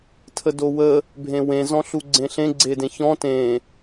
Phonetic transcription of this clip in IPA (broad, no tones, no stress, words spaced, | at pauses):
tʰədowə | bʱẽwẽ zɔ̃ɬuɡ͡ǀẽɬẽ ɡ͡ǀedẽçɔ̃ tẽ